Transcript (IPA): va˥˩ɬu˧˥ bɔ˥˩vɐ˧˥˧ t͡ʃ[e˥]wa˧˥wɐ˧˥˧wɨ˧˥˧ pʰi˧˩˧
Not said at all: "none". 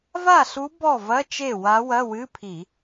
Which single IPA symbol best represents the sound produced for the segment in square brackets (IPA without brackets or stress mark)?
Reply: e˥˩